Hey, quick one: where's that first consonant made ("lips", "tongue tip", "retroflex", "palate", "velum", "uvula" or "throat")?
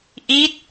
throat